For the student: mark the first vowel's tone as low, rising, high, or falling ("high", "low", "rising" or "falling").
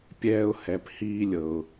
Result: high